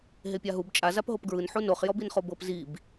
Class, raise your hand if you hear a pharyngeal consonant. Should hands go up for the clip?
yes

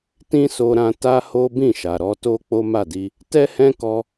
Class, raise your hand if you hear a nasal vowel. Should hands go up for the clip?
yes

